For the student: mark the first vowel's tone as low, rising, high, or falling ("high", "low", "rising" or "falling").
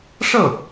falling